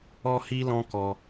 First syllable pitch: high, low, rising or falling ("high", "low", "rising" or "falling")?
high